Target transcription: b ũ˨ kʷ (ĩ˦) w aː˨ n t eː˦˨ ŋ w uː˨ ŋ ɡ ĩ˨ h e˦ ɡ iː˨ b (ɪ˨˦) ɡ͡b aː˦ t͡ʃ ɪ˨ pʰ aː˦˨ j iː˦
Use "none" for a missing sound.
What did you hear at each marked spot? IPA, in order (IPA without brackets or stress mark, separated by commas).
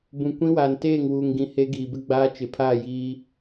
ĩ˦, ɪ˦